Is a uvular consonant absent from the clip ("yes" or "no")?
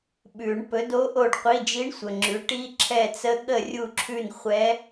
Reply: no